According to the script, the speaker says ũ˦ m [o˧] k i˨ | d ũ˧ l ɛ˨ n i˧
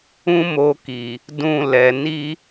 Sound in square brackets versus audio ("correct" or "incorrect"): correct